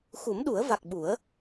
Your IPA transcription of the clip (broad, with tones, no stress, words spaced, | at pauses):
xu˨˩˦m ɗu˨˩˦ə̯ va˨˩k̚ɓu˨˩˦ə̯